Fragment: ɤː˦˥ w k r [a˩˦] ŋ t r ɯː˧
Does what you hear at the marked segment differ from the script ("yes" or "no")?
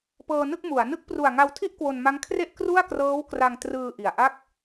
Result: yes